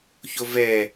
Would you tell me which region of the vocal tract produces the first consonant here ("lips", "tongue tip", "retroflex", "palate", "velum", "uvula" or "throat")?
palate